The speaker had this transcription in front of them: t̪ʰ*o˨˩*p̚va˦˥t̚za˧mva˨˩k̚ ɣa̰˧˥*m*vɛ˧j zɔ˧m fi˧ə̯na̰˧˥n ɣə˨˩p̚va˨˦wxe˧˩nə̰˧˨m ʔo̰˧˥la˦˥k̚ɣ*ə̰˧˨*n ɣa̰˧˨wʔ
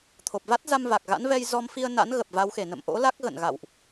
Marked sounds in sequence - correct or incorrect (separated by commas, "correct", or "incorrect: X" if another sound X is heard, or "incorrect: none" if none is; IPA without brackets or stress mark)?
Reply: correct, incorrect: n, correct